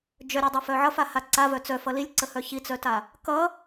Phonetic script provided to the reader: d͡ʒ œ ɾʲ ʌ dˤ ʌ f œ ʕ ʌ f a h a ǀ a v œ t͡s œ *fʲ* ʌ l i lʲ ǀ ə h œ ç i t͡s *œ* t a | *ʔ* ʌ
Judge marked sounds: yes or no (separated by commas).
no, yes, no